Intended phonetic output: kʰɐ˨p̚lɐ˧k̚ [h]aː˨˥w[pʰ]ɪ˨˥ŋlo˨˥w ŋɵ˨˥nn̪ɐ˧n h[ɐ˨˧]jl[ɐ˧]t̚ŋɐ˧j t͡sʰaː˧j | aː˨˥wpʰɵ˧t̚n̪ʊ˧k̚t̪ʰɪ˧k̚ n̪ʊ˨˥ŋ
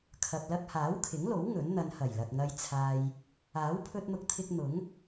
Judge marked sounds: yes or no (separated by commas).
yes, no, no, no